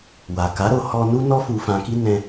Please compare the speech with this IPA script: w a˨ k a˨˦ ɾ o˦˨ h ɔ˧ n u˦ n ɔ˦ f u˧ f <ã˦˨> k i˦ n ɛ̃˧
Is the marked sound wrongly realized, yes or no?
yes